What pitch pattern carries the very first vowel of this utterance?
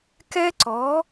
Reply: high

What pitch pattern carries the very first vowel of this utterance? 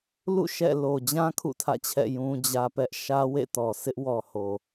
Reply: falling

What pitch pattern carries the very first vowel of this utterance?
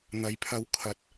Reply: low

